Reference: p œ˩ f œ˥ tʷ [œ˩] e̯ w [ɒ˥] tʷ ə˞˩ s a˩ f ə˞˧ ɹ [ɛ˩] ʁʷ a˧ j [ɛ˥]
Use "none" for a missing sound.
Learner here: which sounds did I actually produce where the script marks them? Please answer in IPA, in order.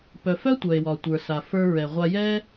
œ˩, ɒ˩, ɛ˩, ɛ˥

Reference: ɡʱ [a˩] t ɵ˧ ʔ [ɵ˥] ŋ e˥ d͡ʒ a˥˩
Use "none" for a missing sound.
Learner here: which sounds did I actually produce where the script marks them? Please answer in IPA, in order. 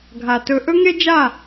a˩, ɵ˥

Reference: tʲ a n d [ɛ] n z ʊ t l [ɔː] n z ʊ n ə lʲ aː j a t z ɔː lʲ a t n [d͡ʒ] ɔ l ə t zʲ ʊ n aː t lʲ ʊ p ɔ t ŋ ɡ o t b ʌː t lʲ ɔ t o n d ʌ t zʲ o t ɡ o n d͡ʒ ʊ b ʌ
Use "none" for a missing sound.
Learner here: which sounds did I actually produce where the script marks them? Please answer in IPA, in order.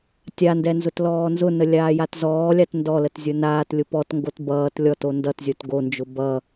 ɛ, ɔː, d

